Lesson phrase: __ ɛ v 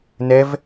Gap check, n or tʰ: n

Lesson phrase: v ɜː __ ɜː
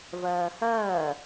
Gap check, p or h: h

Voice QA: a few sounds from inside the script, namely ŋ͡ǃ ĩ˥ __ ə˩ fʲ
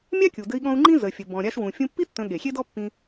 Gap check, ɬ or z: z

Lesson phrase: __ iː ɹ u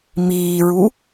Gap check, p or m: m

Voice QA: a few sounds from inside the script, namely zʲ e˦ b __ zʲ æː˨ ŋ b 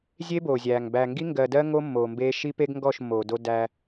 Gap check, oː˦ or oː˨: oː˨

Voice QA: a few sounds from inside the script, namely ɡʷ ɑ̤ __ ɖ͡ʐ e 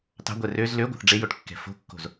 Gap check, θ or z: θ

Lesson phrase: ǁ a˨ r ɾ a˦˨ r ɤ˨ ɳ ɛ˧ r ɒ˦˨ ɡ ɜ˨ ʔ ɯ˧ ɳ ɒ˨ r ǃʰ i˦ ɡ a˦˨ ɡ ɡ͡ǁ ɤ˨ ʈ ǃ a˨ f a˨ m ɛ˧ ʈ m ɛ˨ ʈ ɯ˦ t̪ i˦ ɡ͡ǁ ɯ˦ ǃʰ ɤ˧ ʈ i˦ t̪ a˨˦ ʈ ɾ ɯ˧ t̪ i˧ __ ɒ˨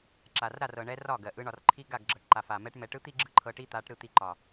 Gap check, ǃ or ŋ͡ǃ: ǃ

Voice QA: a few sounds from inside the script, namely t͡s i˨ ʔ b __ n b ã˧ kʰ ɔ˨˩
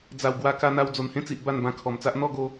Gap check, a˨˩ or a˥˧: a˥˧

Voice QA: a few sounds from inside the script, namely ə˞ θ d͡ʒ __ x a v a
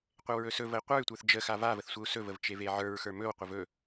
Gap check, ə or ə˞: ə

